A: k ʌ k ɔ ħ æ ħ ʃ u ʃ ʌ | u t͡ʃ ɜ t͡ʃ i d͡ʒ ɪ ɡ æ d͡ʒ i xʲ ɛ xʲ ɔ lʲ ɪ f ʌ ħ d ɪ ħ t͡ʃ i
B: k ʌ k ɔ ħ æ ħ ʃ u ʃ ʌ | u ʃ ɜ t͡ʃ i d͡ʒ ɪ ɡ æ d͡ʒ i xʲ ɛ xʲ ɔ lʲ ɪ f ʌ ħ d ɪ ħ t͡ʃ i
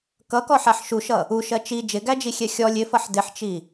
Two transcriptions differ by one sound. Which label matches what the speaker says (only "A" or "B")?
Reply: B